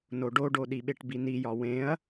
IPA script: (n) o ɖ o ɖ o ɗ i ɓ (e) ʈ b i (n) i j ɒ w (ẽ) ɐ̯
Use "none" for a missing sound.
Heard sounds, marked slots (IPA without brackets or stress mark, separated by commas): n, e, n, ẽ